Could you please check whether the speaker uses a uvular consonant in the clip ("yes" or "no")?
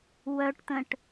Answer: no